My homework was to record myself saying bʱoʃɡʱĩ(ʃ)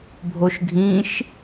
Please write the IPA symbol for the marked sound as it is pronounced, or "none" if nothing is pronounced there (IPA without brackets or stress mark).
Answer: ʃ